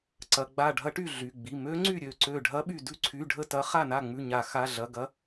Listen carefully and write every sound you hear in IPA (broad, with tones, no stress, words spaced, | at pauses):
ǀɐ˩˧˩ɡ͡ba˧˩ ɖʱɐ˧˥ʈy˧˩ ɮy˩˧˩ɡ͡bi˩˧˩ mø˧˥ŋ͡ǀy˥˩ ɾʲø˥˩ǀø˥˩ ɖʱɐ˧˥ɓy˧˩ dʉ˧˥ǀʰy˩˧˩ ɖʱə˥˩tɐ˧˥ χa˥˩na˥˩ŋ͡mʉ˧˩ɲa˨˩˦ xa˩˧˩ɮɐ˩˧˩ ɡɐ˧˥